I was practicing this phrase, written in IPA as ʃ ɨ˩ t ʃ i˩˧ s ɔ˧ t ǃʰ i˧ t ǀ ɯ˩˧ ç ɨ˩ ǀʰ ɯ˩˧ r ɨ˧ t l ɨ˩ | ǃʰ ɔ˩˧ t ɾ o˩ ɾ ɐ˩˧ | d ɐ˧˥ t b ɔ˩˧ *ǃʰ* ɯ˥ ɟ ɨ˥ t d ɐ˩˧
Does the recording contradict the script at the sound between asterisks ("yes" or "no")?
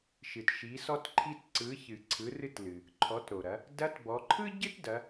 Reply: no